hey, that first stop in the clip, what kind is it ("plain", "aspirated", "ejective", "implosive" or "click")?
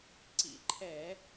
click